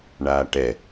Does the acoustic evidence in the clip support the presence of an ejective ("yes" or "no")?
no